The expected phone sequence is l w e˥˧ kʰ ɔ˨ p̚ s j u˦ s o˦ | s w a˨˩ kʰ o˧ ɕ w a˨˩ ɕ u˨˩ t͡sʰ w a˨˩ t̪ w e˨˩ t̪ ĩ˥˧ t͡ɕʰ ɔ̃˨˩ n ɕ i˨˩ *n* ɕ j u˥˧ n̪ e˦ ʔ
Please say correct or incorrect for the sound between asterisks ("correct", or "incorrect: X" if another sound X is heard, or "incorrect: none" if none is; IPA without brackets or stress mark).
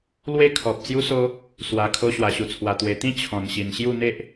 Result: correct